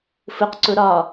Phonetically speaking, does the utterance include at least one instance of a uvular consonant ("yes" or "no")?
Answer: yes